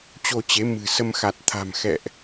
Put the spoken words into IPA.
t͡ɕ o˧ t͡ɕ e˨˦ m ɨ̤˨˩ s ə˧ m x a˨˩ t̚ t̪ʰ a̤˨˩ m x ɛ̰˧˨ ʔ

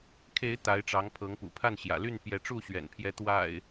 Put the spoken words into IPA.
kʰ e˨˦ ɪ̯ t̪ a˨˦ ɪ̯ ʈ͡ʂ ɑ˨˦ ŋ pʰ ɤ˨˦ ŋ p ṵ˨˩ pʰ a˥˨ n ɕ j ä̰˨˩ l y˥˨ n p j ɛ˨˦ ʈ͡ʂ u˥˨ ɕ ɥ ɛ̰˨˩ n pʰ j ɛ˨˦ t̪ w a̰˨˩ ɪ̯

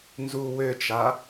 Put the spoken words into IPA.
n z u w ø t͡ʃ a

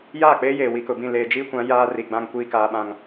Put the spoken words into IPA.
j aː˦˨ k͡p eː˦ j eː˨ w i˨ k ʊ˨ b ĩ˦˨ l eː˨ d͡ʒ iː˦ kʷ ã˨˦ j aː˦ r i˨ ɡ͡b ã˦ ŋ kʷ iː˦ k aː˦ ɓ ã˦ ŋ

